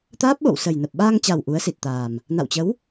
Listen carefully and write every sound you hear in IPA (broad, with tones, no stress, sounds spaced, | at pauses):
t̪ aː˦˥ p̚ ɓ o̰˧˨ w s ə˨˩ j n ə˨˩ p̚ ɓ aː˧ ŋ t͡ɕ a˨˩ w ʔ u˨˦ ə̯ s i˨˩ t̚ t̪ aː˨˩ m | n a̰˧˨ w t͡ɕ ə˨˦ w